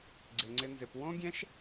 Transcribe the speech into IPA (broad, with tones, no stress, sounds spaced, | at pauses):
ɡ͡ǀ ɪ˧ ŋ͡ǀ ɪ˦ n z ɪ˧ p w õ˦ ɡʲ ɛ̃˦ ʃ